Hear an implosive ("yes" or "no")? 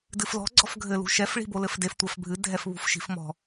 no